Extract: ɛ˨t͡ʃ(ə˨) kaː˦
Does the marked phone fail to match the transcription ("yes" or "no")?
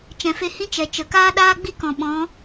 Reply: no